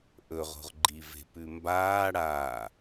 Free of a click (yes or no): no